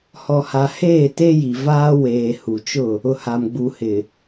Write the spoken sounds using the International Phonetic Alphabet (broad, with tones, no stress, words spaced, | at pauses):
hɔ˨ ha˨ heː˦˨te˦ji˨vaː˦ weː˨hu˨t͡ʃʊ˦˨ | ʊ˨ha˨m ɡ͡bu˨hɪ˨